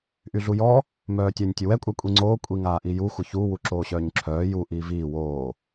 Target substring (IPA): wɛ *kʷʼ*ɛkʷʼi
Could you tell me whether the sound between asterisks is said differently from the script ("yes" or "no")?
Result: no